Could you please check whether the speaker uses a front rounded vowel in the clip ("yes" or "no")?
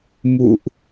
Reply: no